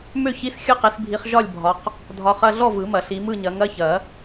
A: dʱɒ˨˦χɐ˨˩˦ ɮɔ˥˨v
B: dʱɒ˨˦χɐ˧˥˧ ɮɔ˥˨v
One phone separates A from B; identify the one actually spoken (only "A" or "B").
B